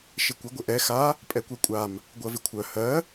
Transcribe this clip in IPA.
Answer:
ʃ ɪ kʷ ɪ ɡʷ ɪ ʔ ɛ x a | pʼ ɛ kʷ ɜ kʷʼ a m | ɡʷ ɜ v ɪ kʷʰ œ h ɜ

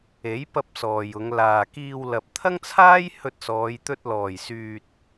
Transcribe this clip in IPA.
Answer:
e˨˥ j p ɐ˧ p̚ s ɔː˨ j ʊ˨˧ ŋ l aː˨ k iː˧ w l ɐ˨ p̚ t̪ʰ ɐ˥ ŋ t͡sʰ aː˥ j h ɵ˧ t̚ s ɔː˨˧ j t̪ ɵ˧ t̚ l ɔː˨˩ j s yː˨ t̚

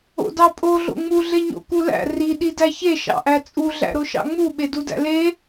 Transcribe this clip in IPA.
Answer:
o̰ d ɑ pʼ o ɮ o̰ ŋ͡m u ɮ e ɲ o̰ k u l æ̰ r i ɗ i d æ ç e ʃ ɑ̰ ʔ æ t͡sʼ u ɮ æ̰ ɾ o ʃ ɑ̰ ŋ͡m u ɓ e d u d æ̰ l e

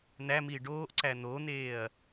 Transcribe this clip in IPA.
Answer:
n̪ æ m iː ɖ oː ʔ ǀ æ n̪ o n̪ eː ɐ̯

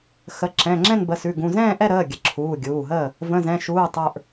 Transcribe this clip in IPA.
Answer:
x ə˩˧˩ ǁ ɛ̃˩˧˩ ŋ͡ǁ ɛ̃˥˨ n b ə˩˧˩ s ʉ˩˧˩ ɡ ũ˩˧˩ z ɛ̃ː˥˨ ʔ ɛ˥˨ ɾ əː˩˧˩ ɡʲ ə˩˧˩ ǁʰ uː˩˧˩ ɡʲ uː˩˧˩ ɦ əː˥˨ | v ə̃˩˧˩ z ɛ̃˩˧˩ ʃ uː˩˧˩ tˤ ə˞˩˧˩ ʔ

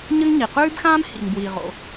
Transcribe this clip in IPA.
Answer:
ɲ ə˥ ŋ ɲ i˩ q ʉː˥ b x ãː˥ m h ḭ˩ ŋ b w iː˩ ʁ o̰˩

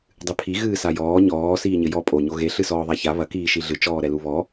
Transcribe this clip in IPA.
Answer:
dˤ ɨ pʰ i ɣ ɨː s a j ɔː ɲ ɔː s iː ɲ ɘ j ɔ pʼ o ɲ o ɣ e ɬ ɨ s ɔː ðˤ a ç a β ɐ k iː ʃ i ɮ ɨ t͡ʃ ɔː ɾ ɛ l u β ɔ

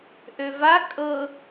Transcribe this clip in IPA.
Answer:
ʔ ø v a kʼ ɤ

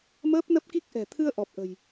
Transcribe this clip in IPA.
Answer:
m əː˦˥ p̚ n ə˦˥ p̚ k i˦˥ k̚ ʔ ɛ̤˨˩ t̪ʰ ɨ˧ ə̯ ʔ ɔ˨˩ p̚ ʔ ə̤˨˩ j

